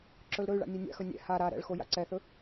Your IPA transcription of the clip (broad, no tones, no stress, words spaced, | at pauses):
ǁɵlɾɵy̯ɭa̰ nʲenʲa̰xɵ nʲɛ̰ ha ɾa ɾɛ̰ɭxo ja̰ǀɛθɵ